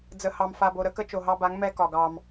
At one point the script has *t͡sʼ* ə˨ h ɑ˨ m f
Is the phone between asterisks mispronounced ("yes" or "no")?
yes